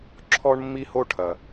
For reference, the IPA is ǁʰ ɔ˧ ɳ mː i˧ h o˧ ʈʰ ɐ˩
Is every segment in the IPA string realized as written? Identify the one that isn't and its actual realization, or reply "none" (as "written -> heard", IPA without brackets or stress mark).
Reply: none